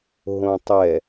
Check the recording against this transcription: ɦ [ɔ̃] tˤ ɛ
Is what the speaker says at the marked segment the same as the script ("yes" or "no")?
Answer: no